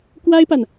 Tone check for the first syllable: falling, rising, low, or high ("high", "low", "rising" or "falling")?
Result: high